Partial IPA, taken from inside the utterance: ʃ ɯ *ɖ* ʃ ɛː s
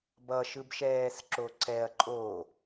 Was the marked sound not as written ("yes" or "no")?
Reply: yes